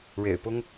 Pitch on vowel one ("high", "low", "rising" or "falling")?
low